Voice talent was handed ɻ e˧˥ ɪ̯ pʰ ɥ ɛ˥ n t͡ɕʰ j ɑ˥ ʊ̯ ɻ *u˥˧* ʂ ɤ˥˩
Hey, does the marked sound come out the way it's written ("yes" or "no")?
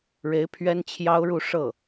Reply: yes